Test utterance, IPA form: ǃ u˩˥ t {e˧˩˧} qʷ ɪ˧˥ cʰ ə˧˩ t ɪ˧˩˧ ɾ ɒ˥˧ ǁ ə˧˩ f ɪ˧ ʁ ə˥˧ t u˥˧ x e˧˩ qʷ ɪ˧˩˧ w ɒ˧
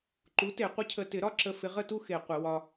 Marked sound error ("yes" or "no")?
no